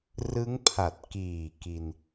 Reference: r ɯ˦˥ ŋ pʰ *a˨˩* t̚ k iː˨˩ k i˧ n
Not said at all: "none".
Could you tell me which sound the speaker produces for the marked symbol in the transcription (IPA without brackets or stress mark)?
a˨˩